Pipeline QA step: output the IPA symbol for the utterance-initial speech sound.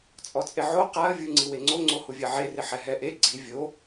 t͡sʼ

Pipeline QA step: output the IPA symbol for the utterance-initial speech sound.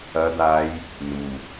ɐ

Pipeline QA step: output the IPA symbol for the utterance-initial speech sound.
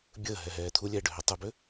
bʲ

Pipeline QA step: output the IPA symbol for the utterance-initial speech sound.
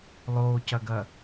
lˠ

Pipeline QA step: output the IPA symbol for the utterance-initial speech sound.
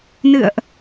n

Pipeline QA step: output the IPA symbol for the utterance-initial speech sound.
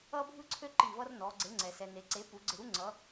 ʌ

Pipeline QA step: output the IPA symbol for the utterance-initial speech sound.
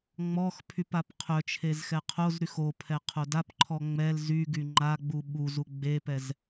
ŋ͡m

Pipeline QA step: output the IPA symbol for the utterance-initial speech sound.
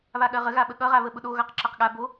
β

